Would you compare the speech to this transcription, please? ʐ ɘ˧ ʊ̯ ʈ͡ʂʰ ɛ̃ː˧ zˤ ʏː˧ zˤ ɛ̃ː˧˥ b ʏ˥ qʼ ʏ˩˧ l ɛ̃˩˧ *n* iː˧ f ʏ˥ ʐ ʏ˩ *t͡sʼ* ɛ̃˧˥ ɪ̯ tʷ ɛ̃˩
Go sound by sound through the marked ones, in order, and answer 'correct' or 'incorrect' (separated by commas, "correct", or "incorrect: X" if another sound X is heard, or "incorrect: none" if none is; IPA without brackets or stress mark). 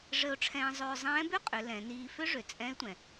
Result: correct, correct